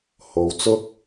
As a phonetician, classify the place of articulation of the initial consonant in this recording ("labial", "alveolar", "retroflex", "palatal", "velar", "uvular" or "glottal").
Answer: glottal